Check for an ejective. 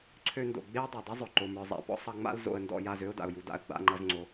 absent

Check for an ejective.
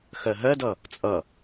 present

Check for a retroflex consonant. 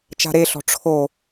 present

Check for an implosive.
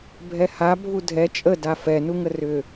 absent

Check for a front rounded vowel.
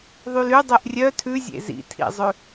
present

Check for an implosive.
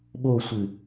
present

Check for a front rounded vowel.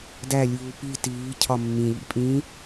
absent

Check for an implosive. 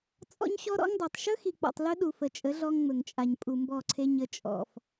present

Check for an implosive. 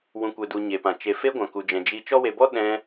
present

